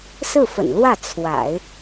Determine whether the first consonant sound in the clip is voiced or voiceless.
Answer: voiceless